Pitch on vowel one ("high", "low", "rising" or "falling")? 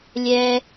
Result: low